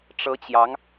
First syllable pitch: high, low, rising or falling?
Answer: rising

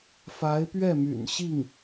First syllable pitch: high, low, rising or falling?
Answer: rising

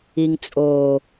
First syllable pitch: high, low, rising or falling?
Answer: low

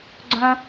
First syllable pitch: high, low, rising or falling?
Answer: high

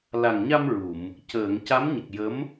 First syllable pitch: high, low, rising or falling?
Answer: low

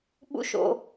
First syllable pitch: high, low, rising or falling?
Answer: falling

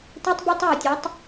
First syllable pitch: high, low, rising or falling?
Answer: high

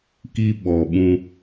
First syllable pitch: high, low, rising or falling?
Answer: high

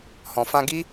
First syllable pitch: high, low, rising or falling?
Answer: low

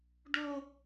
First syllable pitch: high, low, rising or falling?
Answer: high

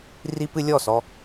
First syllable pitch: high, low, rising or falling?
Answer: high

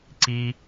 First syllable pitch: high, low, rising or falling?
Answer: high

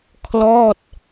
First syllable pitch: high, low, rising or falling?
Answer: falling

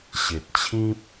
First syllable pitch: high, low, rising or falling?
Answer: low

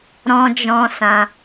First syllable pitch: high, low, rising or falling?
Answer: high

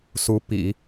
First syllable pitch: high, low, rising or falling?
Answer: rising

